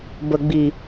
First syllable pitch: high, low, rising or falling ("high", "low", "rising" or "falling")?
low